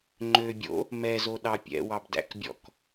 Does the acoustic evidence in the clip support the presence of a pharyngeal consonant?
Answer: no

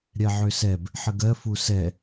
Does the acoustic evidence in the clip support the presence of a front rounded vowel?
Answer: yes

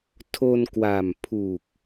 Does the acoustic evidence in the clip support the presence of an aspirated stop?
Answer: yes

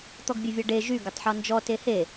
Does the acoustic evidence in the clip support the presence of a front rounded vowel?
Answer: yes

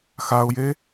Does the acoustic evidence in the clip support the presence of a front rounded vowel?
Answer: no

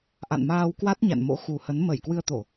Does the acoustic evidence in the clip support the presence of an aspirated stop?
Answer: no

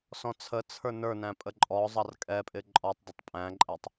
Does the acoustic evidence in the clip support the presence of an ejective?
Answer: yes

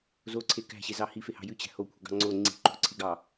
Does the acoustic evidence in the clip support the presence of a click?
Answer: yes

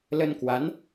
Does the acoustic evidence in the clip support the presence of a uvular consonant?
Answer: no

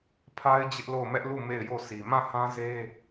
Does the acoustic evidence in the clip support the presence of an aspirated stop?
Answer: yes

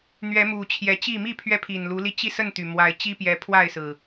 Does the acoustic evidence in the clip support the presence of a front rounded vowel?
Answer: yes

